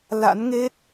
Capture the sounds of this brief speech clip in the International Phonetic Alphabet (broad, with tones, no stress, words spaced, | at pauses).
la̰˧˥nŋe˦˥t̚